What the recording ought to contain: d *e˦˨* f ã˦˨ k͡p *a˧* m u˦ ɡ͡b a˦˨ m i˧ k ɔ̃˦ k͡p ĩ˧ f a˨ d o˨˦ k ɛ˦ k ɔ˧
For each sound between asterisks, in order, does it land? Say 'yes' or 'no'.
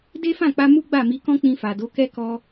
no, yes

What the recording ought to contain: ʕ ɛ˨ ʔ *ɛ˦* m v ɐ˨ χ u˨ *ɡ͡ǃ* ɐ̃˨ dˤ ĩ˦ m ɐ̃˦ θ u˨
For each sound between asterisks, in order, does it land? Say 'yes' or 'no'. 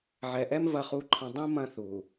yes, no

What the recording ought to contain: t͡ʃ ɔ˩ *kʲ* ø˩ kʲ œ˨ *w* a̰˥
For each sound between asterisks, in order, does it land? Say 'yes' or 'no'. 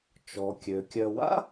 yes, yes

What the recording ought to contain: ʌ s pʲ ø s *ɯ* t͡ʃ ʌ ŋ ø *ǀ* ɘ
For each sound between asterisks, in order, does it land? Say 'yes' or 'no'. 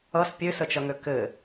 no, no

